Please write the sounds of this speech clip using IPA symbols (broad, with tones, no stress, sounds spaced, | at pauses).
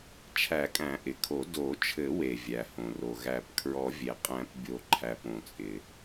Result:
t͡ʃʰ æ˨˩˦ kʼ æ̃˨˩˦ ʔ ɪ˩ kʰ o˨˩˦ d o˨˩˦ t͡ʃʰ ɘ˨˩˦ w e˩ vʲ æ˩ h õ˩ r o˩ ɣ æ˨˩˦ p kʰ ɹ ɔ˨˩˦ vʲ e˩ qʼ æ̃˨˩˦ p bʲ o˨˩˦ ǃʰ æ˩ p õ˩ t͡sʼ ɪ˩